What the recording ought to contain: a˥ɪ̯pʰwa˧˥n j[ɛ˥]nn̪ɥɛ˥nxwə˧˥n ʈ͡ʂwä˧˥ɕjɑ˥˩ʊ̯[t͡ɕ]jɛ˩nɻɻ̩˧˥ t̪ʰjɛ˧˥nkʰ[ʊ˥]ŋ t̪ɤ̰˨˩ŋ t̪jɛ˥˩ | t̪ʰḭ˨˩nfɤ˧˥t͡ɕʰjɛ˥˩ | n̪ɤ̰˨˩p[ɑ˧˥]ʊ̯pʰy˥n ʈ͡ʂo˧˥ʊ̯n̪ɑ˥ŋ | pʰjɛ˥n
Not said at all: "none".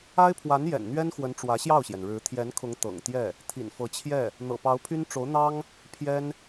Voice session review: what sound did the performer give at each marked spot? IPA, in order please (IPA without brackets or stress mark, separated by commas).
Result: ɛ̰˨˩, ɕ, ʊ˧˥, ɑ˧˥